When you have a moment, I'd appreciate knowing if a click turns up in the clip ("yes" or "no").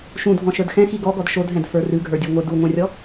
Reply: no